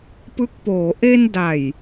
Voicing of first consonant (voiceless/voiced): voiceless